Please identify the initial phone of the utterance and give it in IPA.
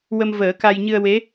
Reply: w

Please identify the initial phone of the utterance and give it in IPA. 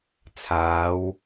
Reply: t͡sʰ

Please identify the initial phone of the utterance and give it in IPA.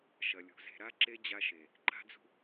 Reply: ʃ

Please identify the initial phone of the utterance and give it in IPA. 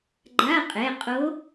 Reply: ɡ͡ǃ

